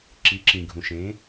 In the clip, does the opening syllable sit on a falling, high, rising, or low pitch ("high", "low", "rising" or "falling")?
rising